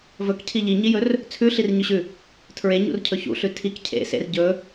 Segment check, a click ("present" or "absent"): absent